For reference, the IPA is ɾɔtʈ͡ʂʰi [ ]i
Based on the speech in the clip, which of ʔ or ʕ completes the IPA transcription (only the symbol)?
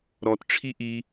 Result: ʔ